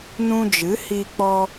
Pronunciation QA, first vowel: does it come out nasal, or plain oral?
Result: nasal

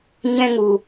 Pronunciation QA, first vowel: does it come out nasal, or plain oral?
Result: nasal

